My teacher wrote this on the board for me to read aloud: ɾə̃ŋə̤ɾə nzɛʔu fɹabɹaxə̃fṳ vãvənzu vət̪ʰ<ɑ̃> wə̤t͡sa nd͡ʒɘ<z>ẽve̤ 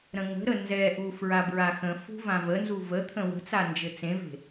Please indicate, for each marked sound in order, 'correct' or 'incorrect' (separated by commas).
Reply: incorrect, incorrect